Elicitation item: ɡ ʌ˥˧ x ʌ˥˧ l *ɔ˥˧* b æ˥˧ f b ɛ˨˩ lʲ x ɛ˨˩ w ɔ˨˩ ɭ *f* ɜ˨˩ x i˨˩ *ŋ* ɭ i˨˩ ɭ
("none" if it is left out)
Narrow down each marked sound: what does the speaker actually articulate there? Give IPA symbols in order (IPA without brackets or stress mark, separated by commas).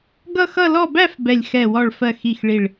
ɔ˥˧, f, x